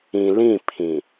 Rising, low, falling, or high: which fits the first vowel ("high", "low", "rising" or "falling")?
low